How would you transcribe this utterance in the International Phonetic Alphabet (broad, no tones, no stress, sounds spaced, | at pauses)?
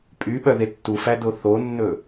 pʼ y ɓ œ ð e tː u f æ d o θ o nː ɵ